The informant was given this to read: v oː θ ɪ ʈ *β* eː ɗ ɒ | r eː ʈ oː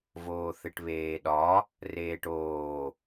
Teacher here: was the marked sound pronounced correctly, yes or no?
yes